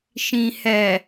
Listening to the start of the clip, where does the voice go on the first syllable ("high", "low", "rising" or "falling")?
low